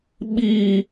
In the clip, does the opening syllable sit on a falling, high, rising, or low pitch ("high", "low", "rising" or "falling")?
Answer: high